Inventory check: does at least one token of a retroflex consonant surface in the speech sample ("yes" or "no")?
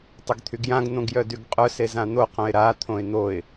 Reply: no